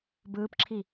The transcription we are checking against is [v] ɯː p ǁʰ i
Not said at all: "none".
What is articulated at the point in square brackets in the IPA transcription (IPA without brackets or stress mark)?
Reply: b